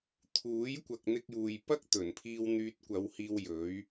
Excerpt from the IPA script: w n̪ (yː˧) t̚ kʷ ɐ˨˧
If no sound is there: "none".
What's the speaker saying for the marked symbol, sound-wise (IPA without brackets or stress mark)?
yː˧